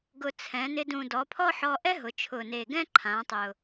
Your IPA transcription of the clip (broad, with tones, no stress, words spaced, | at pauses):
ɡʊ˨˩t͡sʰɛ̃˩˧nɪ˧dũ˨˩ dɔ˩˧pʰɔ˥ħɔ˧ ʔɛ˥ɦʊ˩˧t͡ʃʰʊ˨˩ne˨˩ ɡɛ̃˥ǃʰã˩˧tˤʊ˨˩